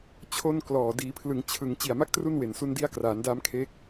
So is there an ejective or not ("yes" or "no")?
no